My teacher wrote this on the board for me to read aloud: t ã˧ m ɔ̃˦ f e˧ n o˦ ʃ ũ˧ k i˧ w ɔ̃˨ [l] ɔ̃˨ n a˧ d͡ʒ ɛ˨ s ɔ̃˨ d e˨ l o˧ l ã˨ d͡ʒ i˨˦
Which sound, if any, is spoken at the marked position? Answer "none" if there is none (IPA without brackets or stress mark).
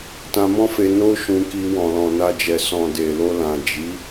l